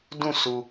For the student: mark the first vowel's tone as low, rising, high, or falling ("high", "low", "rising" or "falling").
falling